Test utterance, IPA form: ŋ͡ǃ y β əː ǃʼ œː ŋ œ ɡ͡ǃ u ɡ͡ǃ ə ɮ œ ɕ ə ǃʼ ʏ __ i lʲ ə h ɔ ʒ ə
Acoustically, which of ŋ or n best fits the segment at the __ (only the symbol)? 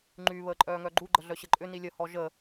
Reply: n